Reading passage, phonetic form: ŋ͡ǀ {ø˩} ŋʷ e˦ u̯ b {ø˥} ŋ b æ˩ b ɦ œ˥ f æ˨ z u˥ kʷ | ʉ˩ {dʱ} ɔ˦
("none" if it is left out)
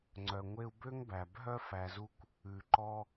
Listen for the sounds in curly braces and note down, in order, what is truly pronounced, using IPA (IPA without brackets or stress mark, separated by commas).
œ˩, ø˥, ǃ